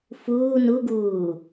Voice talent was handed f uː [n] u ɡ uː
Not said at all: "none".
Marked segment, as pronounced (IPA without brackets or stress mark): n